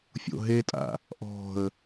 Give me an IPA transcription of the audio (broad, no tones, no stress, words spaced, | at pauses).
fʲo̰ɦetʼa̰ | ʔɔ̤ə̯